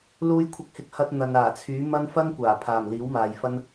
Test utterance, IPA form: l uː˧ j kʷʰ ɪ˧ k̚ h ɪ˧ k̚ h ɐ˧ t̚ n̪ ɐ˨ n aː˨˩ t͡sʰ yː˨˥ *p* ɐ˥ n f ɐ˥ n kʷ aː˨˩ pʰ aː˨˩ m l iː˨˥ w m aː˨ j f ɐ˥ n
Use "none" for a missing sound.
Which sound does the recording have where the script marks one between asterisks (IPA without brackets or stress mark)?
m